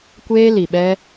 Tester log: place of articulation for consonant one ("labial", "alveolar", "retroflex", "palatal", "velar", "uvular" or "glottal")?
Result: velar